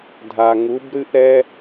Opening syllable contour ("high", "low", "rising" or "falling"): low